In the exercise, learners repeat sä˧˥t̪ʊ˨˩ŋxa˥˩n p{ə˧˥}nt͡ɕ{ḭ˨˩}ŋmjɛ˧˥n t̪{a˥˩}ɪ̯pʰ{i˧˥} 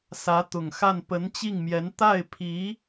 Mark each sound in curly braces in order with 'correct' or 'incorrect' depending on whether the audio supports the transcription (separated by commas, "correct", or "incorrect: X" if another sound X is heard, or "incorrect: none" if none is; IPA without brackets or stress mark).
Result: correct, incorrect: i˥˩, correct, correct